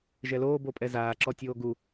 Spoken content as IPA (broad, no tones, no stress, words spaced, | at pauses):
ʒɛloː bopʼɛzaː ǁɔtʲoːɡu